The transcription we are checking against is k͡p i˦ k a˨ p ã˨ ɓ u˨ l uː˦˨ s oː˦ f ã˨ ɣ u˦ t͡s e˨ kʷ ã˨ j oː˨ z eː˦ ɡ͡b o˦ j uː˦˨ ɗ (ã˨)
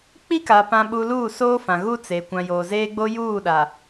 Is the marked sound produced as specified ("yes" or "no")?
no